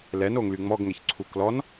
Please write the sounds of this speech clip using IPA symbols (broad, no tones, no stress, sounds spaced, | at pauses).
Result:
l ɛ n o ŋ l y ŋ͡m ɔ ɡ ŋ ɛ ç ǀʰ u k l ɔ n